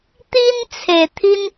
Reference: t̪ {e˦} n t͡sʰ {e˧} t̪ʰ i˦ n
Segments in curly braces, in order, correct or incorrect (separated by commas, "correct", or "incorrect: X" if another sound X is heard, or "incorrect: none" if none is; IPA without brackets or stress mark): incorrect: i˦, incorrect: e˨˩